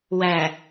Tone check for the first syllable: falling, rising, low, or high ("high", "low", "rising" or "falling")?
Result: low